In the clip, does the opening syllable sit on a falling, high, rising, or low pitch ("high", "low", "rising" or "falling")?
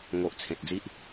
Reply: low